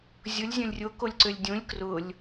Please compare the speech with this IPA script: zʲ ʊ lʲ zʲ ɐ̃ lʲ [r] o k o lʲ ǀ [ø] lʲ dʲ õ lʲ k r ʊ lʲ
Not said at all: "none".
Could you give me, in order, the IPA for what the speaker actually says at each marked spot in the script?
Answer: rʲ, ø

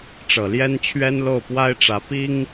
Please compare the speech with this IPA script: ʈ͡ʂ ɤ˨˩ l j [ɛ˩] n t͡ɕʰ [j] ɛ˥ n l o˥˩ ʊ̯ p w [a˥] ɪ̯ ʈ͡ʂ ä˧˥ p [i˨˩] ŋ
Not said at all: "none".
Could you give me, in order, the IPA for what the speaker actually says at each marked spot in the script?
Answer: ɛ˥, ɥ, a˥, i˥

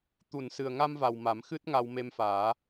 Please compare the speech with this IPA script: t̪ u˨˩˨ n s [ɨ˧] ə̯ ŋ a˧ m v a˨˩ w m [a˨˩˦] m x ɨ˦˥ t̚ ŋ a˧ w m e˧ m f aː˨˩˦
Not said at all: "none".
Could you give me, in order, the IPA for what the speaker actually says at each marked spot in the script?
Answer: ɨ˨˩, a˨˩˦

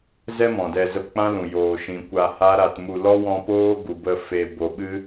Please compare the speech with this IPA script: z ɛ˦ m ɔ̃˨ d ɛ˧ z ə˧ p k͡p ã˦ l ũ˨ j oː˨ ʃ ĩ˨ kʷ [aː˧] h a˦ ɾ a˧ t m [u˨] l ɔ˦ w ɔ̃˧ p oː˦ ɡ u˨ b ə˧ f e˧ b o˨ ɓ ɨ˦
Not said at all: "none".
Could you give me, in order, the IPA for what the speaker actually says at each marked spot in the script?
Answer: a˧, u˧

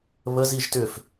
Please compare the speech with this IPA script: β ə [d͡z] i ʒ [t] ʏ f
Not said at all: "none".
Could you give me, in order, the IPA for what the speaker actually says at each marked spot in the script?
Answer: z, t

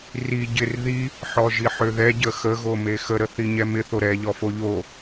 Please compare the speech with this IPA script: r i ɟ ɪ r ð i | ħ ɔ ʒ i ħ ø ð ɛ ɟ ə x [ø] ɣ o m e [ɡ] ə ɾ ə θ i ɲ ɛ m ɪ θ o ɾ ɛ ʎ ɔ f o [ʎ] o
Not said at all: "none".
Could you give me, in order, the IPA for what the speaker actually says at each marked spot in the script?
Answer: ə, x, ʎ

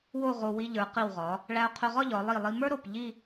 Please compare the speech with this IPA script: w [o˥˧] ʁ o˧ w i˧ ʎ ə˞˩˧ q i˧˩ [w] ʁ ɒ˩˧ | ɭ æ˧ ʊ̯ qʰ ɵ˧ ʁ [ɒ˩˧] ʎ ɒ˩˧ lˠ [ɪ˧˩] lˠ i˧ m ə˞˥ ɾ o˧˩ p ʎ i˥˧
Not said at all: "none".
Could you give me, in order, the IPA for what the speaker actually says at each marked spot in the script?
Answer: o˥˧, w, ɒ˥˧, i˧˩

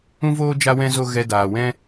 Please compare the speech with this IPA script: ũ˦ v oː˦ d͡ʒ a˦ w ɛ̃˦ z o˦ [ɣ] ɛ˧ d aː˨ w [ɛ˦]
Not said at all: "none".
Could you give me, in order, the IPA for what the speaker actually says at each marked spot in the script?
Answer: ɣ, ɛ̃˦

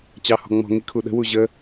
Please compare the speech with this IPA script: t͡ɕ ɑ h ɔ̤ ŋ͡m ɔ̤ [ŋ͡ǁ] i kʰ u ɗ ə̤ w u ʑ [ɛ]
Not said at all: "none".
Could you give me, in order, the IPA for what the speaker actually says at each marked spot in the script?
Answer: ŋ, ə

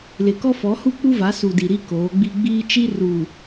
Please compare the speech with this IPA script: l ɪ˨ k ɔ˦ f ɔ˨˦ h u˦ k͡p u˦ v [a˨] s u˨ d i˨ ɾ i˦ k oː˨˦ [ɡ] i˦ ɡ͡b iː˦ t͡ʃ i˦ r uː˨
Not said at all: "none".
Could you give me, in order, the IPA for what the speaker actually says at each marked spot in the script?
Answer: a˨˦, ɡ͡b

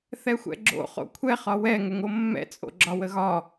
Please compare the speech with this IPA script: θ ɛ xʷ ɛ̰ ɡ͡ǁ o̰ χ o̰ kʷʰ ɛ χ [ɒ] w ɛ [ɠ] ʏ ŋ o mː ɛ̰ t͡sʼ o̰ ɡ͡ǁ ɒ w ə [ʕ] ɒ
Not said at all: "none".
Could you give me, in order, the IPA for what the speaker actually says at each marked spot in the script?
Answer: ɒ, ŋ, ɣ

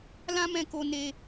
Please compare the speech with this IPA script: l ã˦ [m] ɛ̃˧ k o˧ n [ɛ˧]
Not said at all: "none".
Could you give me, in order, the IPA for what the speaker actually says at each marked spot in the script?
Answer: m, e˧

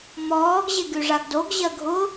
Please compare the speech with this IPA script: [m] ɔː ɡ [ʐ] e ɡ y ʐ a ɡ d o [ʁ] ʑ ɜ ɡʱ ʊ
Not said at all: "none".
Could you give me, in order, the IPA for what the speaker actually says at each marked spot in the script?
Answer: m, ʑ, ɡ

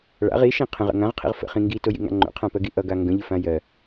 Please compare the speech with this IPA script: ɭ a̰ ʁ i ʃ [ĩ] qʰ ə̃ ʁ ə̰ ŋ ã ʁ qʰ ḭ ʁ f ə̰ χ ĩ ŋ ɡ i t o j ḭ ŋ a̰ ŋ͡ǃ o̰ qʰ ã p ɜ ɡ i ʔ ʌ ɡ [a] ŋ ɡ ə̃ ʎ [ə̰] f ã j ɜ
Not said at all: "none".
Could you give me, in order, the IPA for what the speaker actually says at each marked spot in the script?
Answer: ĩ, a, ə

